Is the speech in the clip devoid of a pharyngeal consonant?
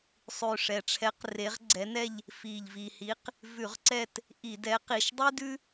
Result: yes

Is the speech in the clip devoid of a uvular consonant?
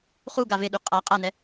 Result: no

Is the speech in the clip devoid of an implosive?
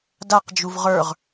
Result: yes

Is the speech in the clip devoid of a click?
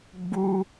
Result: yes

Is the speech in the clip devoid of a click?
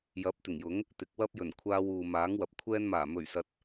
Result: yes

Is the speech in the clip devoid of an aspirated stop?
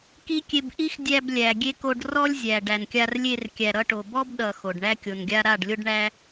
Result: yes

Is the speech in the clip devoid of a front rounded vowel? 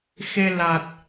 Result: yes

